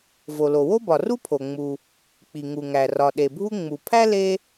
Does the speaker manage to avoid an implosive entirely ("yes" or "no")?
no